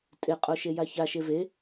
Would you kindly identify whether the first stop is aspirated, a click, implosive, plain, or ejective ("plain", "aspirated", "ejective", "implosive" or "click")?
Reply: ejective